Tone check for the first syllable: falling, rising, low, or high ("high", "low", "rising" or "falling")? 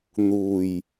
low